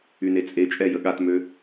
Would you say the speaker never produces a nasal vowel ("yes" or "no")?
yes